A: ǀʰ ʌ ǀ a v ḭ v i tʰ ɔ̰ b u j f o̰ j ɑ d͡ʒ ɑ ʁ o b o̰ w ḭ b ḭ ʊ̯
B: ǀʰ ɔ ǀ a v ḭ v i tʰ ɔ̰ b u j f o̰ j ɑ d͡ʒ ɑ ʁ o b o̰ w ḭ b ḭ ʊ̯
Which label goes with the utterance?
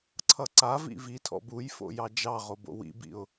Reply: A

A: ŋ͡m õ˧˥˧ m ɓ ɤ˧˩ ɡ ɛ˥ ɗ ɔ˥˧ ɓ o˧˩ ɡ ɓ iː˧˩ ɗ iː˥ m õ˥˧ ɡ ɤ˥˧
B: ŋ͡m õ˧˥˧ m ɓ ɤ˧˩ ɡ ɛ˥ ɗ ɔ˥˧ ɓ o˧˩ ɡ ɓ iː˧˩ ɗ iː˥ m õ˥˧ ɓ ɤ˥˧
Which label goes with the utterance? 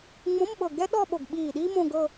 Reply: A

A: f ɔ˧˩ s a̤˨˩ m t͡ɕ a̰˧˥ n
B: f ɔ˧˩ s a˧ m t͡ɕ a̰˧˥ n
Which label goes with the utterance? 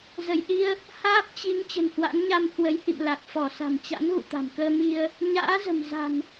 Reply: A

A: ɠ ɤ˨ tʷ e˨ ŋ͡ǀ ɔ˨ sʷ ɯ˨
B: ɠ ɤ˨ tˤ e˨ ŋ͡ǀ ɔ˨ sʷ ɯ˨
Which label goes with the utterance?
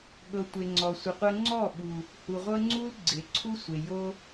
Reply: A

